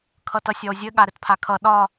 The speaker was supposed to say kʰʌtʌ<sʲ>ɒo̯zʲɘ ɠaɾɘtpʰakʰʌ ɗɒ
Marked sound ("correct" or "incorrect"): correct